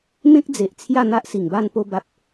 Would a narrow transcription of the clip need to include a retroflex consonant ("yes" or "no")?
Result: no